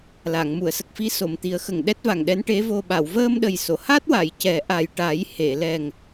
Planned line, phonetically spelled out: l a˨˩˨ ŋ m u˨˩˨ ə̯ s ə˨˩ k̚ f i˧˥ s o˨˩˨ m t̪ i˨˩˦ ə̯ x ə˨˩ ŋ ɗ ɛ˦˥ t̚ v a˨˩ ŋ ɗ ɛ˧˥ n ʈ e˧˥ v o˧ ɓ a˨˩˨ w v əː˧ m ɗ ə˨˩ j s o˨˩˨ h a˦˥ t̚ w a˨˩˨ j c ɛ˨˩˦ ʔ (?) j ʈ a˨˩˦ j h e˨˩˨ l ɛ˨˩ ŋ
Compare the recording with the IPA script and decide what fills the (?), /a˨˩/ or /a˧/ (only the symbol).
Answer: a˨˩